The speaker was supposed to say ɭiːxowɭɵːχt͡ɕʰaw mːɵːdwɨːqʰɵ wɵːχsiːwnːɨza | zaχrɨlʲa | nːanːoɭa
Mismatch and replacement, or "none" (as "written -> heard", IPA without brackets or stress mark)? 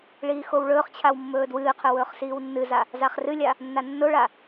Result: none